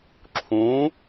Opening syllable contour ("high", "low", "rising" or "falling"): rising